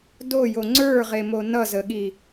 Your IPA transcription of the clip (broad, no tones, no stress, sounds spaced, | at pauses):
d o j o ŋ͡ǀ ə˞ ʁ e m o n ʌ z ə ɠ i